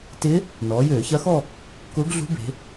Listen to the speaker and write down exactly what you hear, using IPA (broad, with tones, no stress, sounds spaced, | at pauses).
t ɪ˧˥ | n ɔː˩˧ j øː˧˩˧ ç ɐ˧˥ x ɔ˥˧ | k ʊː˧˥ ɡ ɮ ṳ˧˥ b e̤˩˧